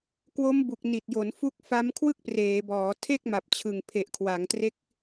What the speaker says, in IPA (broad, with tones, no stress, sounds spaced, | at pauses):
k w o˦˥ m b u˨˩ k̚ n i˨˩ t̚ j o˩˦ n f u˦˥ k̚ f a˦˥ m kʰ w ɯ˥˩ k̚ p r eː˩˦ b ɔː˩˦ tʰ e˥˩ k̚ m a˨˩ p̚ t͡ɕʰ ɯ˨˩ ŋ pʰ e˨˩ ʔ kʰ w a˩˦ ŋ t r e˦˥ k̚